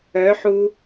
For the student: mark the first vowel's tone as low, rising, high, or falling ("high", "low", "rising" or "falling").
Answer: rising